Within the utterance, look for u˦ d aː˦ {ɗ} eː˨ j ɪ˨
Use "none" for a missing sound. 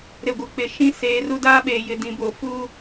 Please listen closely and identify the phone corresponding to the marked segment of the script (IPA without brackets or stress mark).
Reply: ɓ